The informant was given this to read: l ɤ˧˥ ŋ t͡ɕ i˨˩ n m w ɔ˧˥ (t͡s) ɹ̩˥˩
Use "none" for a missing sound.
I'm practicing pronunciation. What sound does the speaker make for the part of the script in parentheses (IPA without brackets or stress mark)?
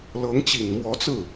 t͡s